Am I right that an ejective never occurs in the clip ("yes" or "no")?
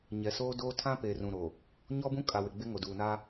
no